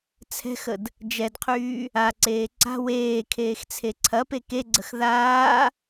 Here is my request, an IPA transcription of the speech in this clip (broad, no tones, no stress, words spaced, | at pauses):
t͡sʰɛ̤xəd | d͡ʒɛdqʰyː | aǀeː ǀa̤ weːkʰeːxt͡sʰe ǀʰɐpe keɡ͡ǀəx ðaː